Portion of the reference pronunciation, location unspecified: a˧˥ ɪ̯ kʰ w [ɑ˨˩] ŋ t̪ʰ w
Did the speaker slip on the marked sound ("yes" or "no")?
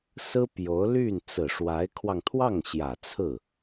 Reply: yes